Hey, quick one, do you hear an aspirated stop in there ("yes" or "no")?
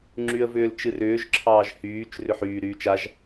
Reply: yes